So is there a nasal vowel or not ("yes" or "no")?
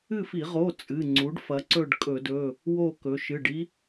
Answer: no